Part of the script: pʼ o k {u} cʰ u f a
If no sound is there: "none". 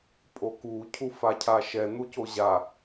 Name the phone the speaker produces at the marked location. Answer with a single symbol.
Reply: u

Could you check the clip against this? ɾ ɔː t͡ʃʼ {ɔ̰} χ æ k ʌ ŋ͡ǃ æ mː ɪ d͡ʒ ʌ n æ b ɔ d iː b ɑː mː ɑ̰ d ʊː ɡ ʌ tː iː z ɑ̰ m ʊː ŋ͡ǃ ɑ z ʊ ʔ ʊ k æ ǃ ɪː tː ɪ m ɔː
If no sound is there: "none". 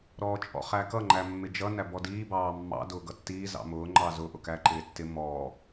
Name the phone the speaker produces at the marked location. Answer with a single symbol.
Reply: ɔ̰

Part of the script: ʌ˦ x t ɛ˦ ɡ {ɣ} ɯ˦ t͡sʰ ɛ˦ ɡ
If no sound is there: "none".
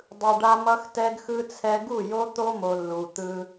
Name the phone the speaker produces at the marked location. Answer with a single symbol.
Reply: x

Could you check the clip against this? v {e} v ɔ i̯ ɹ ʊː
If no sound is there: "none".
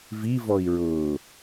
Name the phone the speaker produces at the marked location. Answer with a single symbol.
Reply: i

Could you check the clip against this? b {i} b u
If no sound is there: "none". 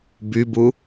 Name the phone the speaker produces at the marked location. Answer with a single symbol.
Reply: y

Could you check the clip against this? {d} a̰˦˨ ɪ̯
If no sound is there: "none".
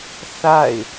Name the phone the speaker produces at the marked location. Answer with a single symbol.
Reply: θ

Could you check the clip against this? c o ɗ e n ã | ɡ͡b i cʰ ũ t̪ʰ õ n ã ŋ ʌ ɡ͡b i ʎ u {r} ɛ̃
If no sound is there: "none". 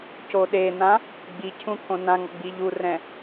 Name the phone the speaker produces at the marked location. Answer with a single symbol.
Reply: r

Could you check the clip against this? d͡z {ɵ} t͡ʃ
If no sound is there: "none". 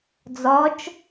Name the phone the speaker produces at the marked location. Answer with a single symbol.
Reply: ɔ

